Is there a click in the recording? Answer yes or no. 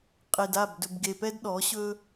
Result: no